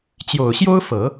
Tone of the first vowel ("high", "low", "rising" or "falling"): low